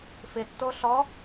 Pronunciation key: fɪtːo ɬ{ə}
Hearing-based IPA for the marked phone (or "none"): ɔ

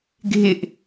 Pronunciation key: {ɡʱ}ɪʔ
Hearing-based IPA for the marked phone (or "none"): ɡʱ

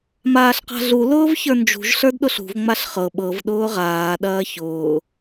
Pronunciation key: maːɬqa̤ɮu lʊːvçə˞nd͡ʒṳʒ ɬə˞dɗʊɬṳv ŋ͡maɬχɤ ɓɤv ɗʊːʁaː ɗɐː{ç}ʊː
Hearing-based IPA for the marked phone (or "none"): ç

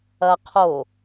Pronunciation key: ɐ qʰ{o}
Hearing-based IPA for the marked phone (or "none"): o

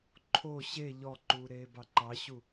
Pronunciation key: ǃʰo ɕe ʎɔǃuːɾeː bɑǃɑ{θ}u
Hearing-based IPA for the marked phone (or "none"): ɕ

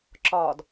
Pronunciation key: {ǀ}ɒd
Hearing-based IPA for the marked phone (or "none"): ǁ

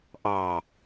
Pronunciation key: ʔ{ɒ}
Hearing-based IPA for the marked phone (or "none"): ɑ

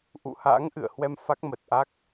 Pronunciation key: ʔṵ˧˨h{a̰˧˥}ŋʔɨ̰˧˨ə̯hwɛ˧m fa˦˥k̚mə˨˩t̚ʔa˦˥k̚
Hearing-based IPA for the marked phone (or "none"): a̰˧˥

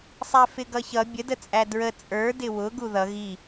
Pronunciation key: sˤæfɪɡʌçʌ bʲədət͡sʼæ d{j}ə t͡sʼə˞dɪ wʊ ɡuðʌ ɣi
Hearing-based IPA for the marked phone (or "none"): ɹ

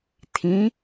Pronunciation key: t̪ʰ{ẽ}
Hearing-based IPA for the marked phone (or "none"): ĩ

